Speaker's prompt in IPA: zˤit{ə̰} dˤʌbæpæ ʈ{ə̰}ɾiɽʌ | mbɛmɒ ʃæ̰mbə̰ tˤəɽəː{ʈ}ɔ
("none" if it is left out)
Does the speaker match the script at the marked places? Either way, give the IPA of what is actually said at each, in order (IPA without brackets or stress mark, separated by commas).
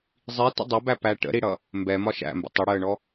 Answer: ə̰, ə̰, ɳ